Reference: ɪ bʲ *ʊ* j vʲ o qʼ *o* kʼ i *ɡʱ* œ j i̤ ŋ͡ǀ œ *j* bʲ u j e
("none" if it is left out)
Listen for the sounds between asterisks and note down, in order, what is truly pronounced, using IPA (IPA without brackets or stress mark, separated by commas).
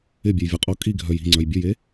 ʊ, o, ɡʱ, j